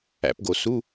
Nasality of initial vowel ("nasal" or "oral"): oral